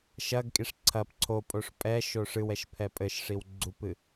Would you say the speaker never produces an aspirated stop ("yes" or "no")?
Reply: no